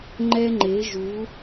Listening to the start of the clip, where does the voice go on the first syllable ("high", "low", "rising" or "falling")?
high